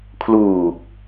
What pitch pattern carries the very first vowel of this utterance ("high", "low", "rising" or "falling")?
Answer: low